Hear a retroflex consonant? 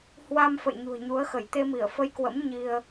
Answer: no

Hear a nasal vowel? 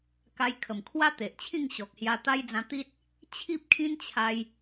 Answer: yes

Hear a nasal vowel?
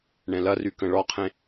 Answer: yes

